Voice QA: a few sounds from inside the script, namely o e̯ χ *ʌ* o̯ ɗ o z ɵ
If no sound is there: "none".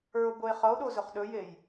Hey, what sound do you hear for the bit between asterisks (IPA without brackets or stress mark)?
ʌ